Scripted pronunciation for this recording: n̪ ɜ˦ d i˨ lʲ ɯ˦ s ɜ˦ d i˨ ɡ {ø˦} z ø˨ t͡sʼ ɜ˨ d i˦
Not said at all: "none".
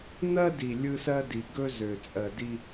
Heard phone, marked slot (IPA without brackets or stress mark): ɵ˦